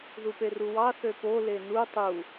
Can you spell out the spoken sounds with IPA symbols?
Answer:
ð u p e r u w ɑ θ ø p o l e n u tˤ u

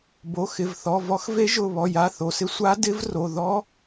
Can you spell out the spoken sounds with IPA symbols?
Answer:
b o˩˧˩ x ɪ˩˧˩ v θ ɔ˩˧˩ v ɔ˧˥ x v e˧˥ ʒ ʊ˩˧˩ β ɔ˩˧˩ j a˩˧˩ θ o˩˧˩ s ɪ˧˥ sʷ a˧˥ d ɪ˧˥ v r o˩˧˩ ð ɔ˧˥

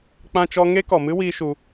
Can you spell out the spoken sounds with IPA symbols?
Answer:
k͡p ã˦ t͡ʃ ɔ˦ ŋ e˦ k ɔ˨ m ɨ˦ w iː˦ ʃ u˧

